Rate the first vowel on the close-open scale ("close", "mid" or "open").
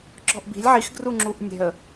mid